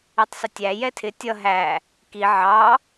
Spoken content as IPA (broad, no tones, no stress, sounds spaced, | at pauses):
i tˤ s ə tʲ æ j ɛ tʰ ɪ tʲ ʌ ɦ æ | k i ʕ ɑ